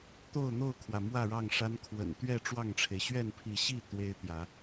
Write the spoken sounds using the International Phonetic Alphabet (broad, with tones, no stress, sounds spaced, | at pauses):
t̪ o˥˨ ʊ̯ n̪ o˥˨ ʊ̯ kʰ w ä˩ m w ä˥˨ ɻ ɑ˥˨ ŋ ʂ a˦ n kʰ w ə̰˨˩ n t̪ ɥ ɛ˥˨ ʈ͡ʂ w ɑ˥˨ ŋ ʈ͡ʂʰ e˩ ɪ̯ ɕ ɥ ɛ˥˨ n pʰ i˨˦ ɕ i˥˨ t̪ w e˦ ɪ̯ t̪ j ä˨˦